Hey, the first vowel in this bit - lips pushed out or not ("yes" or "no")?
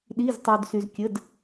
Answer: no